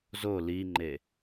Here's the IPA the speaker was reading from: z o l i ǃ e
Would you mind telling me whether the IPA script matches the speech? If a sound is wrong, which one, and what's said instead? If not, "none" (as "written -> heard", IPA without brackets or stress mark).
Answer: ǃ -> ŋ͡ǃ